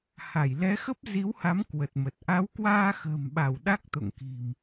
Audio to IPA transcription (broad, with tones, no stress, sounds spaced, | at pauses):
h a˧˩ j l ɛ˨˦ x ə˦˥ p̚ z i˨˦ w h a˨˦ m k w ə˨˩ t̚ m ə˨˩ t̚ ʔ a˨˦ w k w aː˧ x ə̤ː˨˩ m ɓ a˧˩ w ɗ a˦˥ k̚ t̪ o̰˧˨ ŋ k i̤˨˩ m